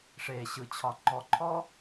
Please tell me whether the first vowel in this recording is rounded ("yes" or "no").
no